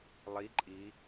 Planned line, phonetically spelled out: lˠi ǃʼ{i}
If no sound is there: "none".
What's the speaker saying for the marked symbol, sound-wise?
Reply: i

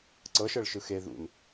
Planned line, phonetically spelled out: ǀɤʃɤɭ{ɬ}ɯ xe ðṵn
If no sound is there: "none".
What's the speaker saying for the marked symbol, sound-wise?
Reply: ʃ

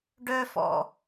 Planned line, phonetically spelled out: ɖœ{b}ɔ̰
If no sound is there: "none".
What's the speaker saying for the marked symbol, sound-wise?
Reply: f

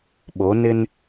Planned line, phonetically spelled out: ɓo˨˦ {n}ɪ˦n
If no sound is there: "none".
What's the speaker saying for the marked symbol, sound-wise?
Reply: n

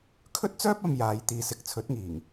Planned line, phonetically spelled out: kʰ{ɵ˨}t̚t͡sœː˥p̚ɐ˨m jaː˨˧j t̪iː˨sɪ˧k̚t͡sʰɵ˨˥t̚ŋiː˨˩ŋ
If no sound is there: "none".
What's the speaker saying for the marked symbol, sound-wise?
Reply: ɵ˥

